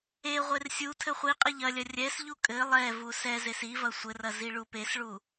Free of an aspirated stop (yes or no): no